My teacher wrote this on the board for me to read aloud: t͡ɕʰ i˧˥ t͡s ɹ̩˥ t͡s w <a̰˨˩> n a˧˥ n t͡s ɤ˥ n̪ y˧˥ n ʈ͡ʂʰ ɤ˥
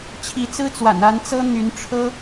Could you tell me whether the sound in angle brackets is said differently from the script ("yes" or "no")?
no